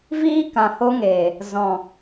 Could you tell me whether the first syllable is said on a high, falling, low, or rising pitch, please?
high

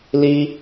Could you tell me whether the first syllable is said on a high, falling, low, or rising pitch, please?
high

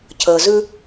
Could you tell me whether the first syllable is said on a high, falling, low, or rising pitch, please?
low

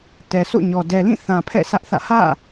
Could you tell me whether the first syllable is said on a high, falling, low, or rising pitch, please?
low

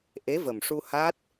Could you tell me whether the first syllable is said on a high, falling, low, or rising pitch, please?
rising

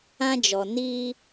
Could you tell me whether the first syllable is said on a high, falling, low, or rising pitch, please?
high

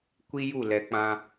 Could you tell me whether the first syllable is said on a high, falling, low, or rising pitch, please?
high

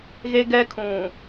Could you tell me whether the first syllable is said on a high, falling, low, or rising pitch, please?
high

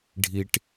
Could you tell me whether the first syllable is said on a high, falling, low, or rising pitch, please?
high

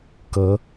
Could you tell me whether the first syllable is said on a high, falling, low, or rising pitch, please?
rising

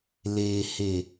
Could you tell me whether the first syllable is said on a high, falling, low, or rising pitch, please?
low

